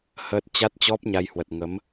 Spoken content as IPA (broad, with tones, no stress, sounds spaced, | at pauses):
h ə˦˥ t̚ t͡ɕ a˦˥ t̚ t͡ɕ ɔ˦˥ p̚ ɲ a˧ j h w ə˨˩ t̚ ŋ ə˨˦ m